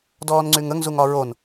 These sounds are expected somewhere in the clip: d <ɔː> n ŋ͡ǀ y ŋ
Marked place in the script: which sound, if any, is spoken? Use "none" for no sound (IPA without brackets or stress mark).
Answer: ɔː